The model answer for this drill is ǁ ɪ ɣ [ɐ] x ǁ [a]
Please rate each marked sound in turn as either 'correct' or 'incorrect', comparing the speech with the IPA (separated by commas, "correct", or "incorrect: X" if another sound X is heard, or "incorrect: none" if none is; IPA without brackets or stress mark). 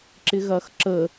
correct, incorrect: ə